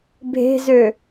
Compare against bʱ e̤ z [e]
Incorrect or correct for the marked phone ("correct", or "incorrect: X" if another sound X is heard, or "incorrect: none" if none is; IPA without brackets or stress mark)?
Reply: incorrect: ø